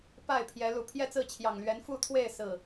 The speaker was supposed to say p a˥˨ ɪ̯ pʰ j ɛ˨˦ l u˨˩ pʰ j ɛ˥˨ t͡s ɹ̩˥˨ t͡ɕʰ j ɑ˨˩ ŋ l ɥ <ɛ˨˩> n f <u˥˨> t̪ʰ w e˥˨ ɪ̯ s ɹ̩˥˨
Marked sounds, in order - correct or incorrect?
incorrect: ɛ˨˦, correct

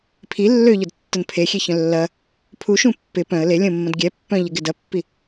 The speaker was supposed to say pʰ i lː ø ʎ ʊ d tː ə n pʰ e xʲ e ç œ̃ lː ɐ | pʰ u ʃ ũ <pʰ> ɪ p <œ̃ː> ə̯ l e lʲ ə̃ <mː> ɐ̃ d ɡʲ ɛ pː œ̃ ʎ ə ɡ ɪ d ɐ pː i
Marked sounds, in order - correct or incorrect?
incorrect: pː, incorrect: œ̃, correct

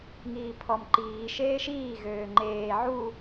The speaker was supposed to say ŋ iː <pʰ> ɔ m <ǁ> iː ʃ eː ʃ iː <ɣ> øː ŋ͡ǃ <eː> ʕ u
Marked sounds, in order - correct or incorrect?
correct, incorrect: ǃ, correct, correct

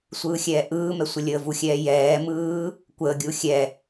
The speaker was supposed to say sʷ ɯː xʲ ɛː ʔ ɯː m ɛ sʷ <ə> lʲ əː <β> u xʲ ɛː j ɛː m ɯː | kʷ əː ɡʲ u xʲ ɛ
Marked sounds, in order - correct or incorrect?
correct, incorrect: v

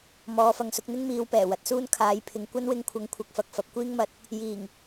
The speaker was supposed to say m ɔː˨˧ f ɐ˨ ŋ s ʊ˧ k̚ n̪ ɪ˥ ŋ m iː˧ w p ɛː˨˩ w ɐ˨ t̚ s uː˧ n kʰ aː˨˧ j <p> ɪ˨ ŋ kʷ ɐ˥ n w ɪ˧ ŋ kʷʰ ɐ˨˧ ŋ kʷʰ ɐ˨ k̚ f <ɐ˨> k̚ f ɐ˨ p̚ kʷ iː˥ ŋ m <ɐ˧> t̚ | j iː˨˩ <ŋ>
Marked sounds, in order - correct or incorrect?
incorrect: pʰ, correct, correct, correct

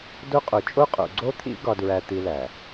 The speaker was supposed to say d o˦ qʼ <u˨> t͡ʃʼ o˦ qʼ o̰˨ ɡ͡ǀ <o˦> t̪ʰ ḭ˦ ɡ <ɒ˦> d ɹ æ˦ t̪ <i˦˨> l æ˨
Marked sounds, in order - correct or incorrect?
incorrect: o˨, correct, correct, incorrect: i˦

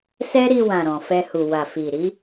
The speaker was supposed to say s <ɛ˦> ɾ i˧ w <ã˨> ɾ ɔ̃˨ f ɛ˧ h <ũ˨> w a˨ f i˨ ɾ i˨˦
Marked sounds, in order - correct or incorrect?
correct, correct, incorrect: u˨

